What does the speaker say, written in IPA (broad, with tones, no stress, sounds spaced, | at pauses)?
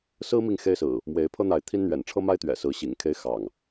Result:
s ɹ̩˦ m i˨ ŋ x e˦ ɪ̯ s ɹ̩˨˩ | m w e˨˦ ɪ̯ pʰ ɤ˦ n̪ a˨˦ ɪ̯ t̪ʰ i˦ n n̪ ɥ ɛ̰˨˩ n ʈ͡ʂʰ ɤ˦ m a˦ ɪ̯ t̪ ɥ ɛ̰˨˩ s ɹ̩˨˦ ɕ ḭ˨˩ ŋ kʰ e˦ ɪ̯ x ɑ̰˨˩ ŋ